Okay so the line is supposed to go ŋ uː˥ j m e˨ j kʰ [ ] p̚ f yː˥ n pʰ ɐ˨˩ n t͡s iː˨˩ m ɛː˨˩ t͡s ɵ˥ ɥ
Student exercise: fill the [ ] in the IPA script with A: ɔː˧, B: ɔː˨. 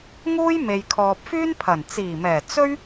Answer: B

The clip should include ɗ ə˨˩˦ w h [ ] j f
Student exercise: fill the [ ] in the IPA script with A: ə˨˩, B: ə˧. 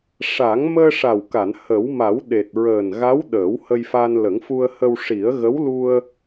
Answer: B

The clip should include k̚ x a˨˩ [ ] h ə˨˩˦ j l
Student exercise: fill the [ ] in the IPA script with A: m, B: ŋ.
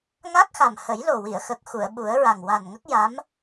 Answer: A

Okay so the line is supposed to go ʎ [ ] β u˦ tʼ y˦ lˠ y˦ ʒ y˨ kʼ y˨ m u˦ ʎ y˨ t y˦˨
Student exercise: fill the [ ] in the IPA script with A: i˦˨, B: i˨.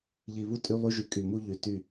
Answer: B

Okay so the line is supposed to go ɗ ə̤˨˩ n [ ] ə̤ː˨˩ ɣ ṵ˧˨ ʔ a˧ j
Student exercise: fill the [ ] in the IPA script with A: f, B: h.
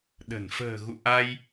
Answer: A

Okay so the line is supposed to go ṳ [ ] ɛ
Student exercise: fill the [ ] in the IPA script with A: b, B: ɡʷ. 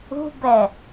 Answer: A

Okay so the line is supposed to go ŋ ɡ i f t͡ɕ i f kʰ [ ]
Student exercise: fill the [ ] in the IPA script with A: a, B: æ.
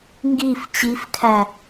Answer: B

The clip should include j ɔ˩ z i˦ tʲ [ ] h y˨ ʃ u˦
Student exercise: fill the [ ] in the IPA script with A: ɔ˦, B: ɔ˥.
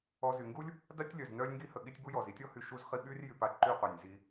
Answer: A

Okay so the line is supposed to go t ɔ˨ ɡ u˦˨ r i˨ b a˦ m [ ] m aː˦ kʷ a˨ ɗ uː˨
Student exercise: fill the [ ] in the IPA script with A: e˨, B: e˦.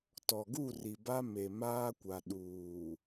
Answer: A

